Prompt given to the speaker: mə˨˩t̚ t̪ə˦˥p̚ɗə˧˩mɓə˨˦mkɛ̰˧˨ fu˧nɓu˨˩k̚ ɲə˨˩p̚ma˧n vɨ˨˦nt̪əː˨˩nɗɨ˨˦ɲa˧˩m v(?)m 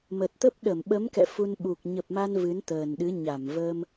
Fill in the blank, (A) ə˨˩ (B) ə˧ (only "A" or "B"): B